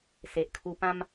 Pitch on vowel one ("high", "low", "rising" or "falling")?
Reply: low